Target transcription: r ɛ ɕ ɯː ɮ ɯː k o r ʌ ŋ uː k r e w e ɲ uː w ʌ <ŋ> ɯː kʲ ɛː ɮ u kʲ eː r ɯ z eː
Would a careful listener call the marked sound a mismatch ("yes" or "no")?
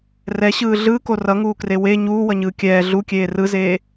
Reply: yes